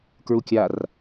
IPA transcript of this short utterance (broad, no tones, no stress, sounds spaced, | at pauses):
k ɹ u kʲ a r